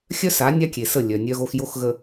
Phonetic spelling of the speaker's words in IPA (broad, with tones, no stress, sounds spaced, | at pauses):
xʲ œ˦ s a˨˦ nʲ a˦ kʲ e˨ s ə˦˨ lʲ œ˨ nʲ œ˦ ɣ o˦ x j o˦ x ɣ ə˨